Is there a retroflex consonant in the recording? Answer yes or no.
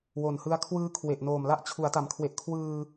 no